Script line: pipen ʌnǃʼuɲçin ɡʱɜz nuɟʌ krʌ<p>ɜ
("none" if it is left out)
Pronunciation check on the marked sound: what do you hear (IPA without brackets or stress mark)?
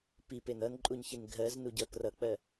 k͡p